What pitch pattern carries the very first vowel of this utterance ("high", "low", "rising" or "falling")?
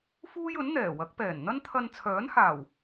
high